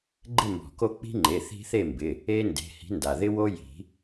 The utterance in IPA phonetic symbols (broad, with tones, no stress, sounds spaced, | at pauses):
ɡ͡ǃ ɪ˥˨ m b ɔ̤˨˩˦ k o˦ k͡p i̤˦ ŋ͡ǃ e˩˧˩ θ i̤˦ θ e˥˨ m b ɪ˩˧˩ | e˦ n d e̤˩˧˩ h i̤˨˥ n d a˩ ð ɪ˦ w o˦ j i̤˨˩˦